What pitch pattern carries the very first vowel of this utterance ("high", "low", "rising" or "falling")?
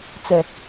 low